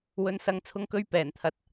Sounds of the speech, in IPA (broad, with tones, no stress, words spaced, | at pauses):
wɵ˨˧nsɐ˨˧ŋt͡sʰʊ˧ŋkɵ˧ɥ pɛː˨˩nt̪ʰɐ˨t̚